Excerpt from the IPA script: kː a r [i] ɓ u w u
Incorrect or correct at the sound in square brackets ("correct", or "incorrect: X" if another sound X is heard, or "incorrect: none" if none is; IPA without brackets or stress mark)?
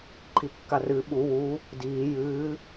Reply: incorrect: ɨ